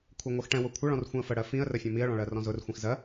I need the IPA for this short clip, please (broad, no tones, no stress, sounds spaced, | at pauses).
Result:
kʷʰ ɛ ŋʷ ɜ x ʈ ɛ̃ w ʊ kʷʰ ʌ ɭ ɔ̃ r xʷ ĩ ə̯ f ə ɽ ɜ f ĩ ə̯ r ə fʲ ɔ̃ m i ə̯ ɭ ɔ̃ ɭ ɜ r ɔ̃ z ʊ r xʷ ĩ x z ɜ